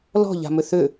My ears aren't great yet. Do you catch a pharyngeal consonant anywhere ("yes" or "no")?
no